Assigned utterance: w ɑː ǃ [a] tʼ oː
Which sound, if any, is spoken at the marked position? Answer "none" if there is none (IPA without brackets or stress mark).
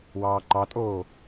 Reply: ɑ